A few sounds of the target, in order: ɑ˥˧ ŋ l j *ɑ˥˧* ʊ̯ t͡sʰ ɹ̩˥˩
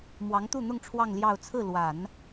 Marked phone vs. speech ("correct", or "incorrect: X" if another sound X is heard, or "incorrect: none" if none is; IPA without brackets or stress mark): correct